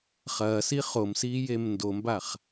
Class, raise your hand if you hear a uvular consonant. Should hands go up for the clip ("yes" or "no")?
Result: yes